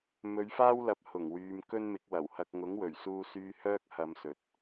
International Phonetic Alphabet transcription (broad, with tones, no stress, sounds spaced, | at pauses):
m ɵ˨˧ ɥ f aː˥ w l ɐ˨ p̚ h ʊ˨˩ ŋ w yː˨ m k ɵ˥ n m ɪ˨˥ k̚ w ɐ˨˩ w h ɐ˧ k̚ ŋ ʊ˨˥ ŋ w ɵ˨˩ ɥ s uː˧ s yː˧ h œː˥ k̚ h ɐ˨˧ m s ɵ˨ t̚